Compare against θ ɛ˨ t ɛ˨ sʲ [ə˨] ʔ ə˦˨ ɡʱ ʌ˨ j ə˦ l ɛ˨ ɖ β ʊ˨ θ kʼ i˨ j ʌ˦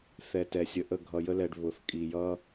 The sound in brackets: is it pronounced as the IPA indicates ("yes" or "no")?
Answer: yes